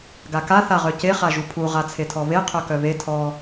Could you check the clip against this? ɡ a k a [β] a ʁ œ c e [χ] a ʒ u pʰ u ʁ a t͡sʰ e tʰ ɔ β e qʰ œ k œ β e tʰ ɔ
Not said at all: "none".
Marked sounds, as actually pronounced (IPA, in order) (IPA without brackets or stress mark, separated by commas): θ, χ